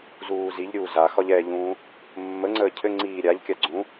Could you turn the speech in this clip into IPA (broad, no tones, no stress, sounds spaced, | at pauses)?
z uː z i ʎ ɾʲ uː z a x ɒ ʎ ɛ ʎ ũː | mː ə ŋ͡ǀ əː cʰ ɘ ŋ͡ǀ iː ɾʲ a ʎ kʲ a ɡ͡ǀ ũ